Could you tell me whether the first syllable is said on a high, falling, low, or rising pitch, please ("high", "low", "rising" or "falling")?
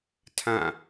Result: falling